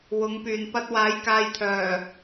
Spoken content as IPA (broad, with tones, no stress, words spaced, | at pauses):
wʊ˨˧ŋpyː˨n pɐ˧t̚waː˨˥jkaː˨jt̪ʰœː˨˩